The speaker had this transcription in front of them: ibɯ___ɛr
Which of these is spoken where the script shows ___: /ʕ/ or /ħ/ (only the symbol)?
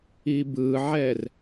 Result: ʕ